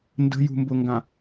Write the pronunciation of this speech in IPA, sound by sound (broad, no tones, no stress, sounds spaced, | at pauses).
n d ə̤ j ṳ m b ʊ ŋ ɡ ã